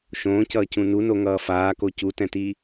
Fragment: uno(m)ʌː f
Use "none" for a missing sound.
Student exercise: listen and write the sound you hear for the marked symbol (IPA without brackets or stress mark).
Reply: ŋ